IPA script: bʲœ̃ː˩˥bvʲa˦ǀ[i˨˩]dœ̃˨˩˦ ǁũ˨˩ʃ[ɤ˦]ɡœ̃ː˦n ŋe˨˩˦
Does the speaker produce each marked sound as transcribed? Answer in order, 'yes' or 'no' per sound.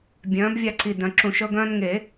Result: yes, yes

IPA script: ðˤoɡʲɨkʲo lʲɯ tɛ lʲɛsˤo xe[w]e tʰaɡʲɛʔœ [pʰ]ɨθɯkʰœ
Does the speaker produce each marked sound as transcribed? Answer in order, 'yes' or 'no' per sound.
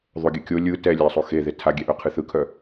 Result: no, no

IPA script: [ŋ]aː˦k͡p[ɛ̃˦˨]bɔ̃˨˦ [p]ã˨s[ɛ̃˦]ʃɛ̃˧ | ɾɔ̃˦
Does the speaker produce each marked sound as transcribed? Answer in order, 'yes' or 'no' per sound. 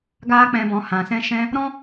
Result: no, no, no, no

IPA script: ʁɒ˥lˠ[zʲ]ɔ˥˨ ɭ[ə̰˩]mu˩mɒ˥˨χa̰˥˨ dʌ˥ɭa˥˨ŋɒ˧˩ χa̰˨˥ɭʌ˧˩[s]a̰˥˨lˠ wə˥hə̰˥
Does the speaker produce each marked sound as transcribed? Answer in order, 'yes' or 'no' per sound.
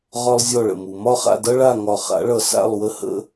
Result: yes, yes, yes

